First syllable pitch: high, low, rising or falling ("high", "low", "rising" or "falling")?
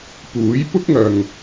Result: rising